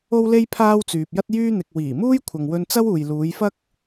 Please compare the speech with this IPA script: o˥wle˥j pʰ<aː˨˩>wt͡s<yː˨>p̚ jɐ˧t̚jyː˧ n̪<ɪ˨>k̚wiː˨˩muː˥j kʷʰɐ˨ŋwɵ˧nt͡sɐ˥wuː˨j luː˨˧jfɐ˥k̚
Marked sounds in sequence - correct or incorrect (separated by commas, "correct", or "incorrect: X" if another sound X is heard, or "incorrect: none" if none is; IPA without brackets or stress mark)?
incorrect: aː˥, correct, correct